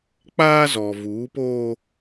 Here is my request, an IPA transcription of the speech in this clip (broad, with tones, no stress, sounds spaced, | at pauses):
k͡p aː˦ z ɔ˨ v uː˨˦ p oː˦